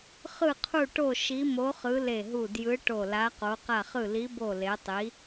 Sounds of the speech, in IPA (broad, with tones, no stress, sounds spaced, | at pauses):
χ ɯ˧˩ qʰ u˧˩ ʈ o˧˩ ʃ i˨˦ m o˨˦ χ ɯ˨˦ l e˧˩ ɦ u˧˩ d j ɯ˨˦ ʈ o˧˩ l a˨˦ q o˨˦ q a˧˩ χ ɯ˧˩ l i˨˦ b o˧˩ l e˨˦ tˤ i˨˦